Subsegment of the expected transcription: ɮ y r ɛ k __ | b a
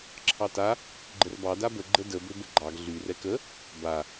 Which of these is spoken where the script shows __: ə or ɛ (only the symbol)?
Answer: ə